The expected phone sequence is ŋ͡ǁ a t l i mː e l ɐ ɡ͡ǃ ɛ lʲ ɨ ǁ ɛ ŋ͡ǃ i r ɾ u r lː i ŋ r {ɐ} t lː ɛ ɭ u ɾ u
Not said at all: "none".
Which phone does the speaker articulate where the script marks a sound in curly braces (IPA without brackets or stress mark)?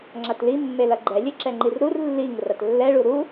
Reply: ɐ